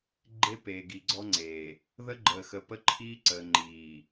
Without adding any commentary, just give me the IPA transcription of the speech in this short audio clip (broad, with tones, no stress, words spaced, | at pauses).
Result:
ɡ͡ǃe˦ peː˨ɡi˨ɡ͡ǀɔ˦ŋ͡ǀeː˨ | ðə˦ɡ͡ǃəː˨xə˨ pə˦ǃʰiː˦ǀəː˨ ŋ͡ǃiː˨